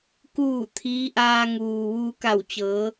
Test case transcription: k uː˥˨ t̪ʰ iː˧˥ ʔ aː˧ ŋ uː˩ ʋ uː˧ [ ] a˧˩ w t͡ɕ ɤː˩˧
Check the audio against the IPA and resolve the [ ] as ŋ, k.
k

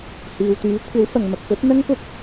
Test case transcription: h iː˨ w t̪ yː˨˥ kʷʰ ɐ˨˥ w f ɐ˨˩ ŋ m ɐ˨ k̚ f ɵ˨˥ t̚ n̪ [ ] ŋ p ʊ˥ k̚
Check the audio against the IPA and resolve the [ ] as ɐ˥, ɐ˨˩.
ɐ˥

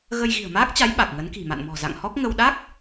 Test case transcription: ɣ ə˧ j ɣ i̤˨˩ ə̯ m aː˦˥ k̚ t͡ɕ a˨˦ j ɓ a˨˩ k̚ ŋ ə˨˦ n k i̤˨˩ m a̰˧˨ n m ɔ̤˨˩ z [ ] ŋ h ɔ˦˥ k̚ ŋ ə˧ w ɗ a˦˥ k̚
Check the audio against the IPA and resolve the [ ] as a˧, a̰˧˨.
a̰˧˨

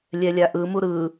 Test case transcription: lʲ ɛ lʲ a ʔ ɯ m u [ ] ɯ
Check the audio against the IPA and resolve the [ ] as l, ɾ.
ɾ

